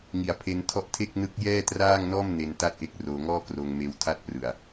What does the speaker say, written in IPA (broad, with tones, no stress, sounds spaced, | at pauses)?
ŋ i˩˦ a̯ pʰ e˧ n tʰ ɔ˦˥ ʔ tʰ e˥˩ k̚ n ɯ˦˥ k̚ j ɛː˥˩ t r aː˥˩ ŋ n ɔː˥˩ m n e˧ n t a˥˩ t̚ ʔ e˦˥ k̚ r oː˧ ŋ ɔː˥˩ k r oː˧ ŋ m eː˧ w tʰ a˥˩ t̚ p r ɯ˨˩ a̯